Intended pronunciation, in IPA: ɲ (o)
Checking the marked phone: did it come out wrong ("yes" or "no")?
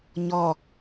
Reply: yes